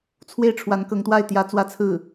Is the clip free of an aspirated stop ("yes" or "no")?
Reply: no